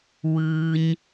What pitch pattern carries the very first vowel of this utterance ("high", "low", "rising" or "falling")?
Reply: low